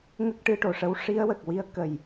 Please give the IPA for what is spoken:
ŋ ə˦˥ k̚ ʈ ɨ˧ ʈ o˨˩ ʂ ə˧˥ w ʂ i˧˥ ə̯ w ə˨˩ k̚ w i˧˥ ə̯ k ə˨˩ j

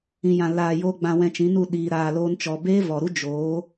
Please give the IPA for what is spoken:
ĩ˨ j ã˨ l aː˨ j o˧ ɡ͡b ã˧ w ɛ̃˧ t͡ʃ ĩ˨˦ n u˦˨ ɗ iː˨ ɾ aː˧ l oː˦ n t͡ʃ ɔ˧ b eː˦ v ɔ˨ ɾ u˦ d͡ʒ oː˨˦

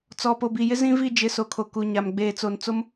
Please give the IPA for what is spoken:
t͡s ɔ˨ p o˨ b i˨ j ɪ˦ z ĩ˦ v i˦˨ d͡ʒ ɪ˨˦ s o˨ kʰ o˨ k u˨ ɲ a˨ m ɡ͡b eː˨ t͡s o˨ n t͡s o˦ m

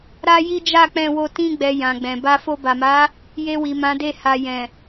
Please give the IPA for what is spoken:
ɾ a˦ j i˦ d͡ʒ a˦˨ k͡p ɛ̃˧ w o˧ t ĩ˧ ɡ͡b ɛ˨ j ã˨ ɡ͡b ɛ̃˨ b a˧ f o˧ b a˨ m a˨˦ | j e˧ w i˨ m ã˨˦ d e˦˨ h a˨ j ɛ̃˨

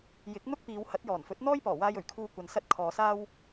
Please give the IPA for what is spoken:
j ɪ˨˥ k̚ n̪ ʊ˥ k̚ p iː˨˧ w h ɐ˨˥ t̚ j ɔː˨˩ n f ɵ˨˥ t̚ n̪ ɔː˥ j p ɔː˨˩ w aː˧ j ɵ˨˩ ɥ kʰ uː˨ kʷ ɐ˨ n s ɐ˧ t̚ kʰ ɔː˨ s aː˥ w

